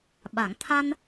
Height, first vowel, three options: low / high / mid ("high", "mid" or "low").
low